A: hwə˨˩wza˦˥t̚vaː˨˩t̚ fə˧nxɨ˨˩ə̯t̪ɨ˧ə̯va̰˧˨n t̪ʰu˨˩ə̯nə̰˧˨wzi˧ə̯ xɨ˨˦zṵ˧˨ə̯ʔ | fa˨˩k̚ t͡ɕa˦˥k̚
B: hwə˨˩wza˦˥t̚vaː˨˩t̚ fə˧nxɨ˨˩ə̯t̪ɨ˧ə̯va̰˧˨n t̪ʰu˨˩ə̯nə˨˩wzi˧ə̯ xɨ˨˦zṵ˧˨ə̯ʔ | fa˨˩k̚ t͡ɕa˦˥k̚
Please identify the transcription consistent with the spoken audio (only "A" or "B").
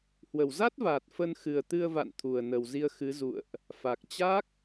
B